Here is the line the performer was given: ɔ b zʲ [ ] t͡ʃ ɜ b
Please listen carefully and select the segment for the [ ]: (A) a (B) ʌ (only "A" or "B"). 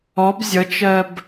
B